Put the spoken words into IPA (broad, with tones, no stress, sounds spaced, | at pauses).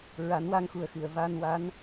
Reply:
ɹ a˨˩˦ n w a˧ ŋ x u˨˩ ə̯ x ɨ˨˩˨ ə̯ v a˧ n w a˧˥ n